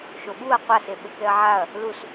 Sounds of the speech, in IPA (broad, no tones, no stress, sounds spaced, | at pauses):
ʃ o ɓ u ɐ̯ qʷ a s e ɓ ɘ k ɛ ɐ̯ ʕ a ɐ̯ | l u s